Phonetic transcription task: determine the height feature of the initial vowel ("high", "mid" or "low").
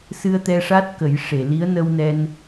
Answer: high